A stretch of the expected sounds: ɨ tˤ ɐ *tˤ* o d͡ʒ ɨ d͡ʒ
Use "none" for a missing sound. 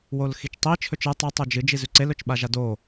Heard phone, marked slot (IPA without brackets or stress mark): tˤ